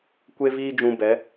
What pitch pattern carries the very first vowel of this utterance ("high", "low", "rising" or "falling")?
high